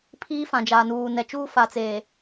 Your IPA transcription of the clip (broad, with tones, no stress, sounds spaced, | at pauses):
pʰ iː˦ f ã˨ d͡ʒ aː˨ n uː˨ n ɛ˨ t͡ʃ uː˦ f a˨ t͡s eː˨